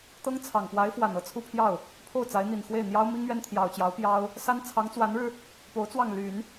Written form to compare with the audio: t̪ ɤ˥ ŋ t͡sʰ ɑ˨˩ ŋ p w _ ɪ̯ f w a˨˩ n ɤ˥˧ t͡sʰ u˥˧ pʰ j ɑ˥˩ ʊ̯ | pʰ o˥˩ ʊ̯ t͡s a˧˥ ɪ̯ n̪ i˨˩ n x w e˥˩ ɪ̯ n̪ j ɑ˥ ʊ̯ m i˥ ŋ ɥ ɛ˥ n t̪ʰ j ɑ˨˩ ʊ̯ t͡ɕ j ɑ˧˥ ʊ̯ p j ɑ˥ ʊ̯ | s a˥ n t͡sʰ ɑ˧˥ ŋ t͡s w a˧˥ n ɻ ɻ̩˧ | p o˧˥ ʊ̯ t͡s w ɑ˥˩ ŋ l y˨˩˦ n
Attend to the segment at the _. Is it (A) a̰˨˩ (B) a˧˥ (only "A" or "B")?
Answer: B